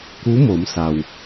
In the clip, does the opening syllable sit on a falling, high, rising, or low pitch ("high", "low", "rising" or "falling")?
rising